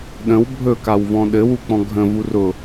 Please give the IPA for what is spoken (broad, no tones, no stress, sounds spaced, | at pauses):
ɗ ə̃ w bʱ ɵ k a w v ɔ̃ ɗ ɘ w u k͡p ɔ̃ ɡʱ ə̃ v u r ʊ